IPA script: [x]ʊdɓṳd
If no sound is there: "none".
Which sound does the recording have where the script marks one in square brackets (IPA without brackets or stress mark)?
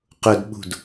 q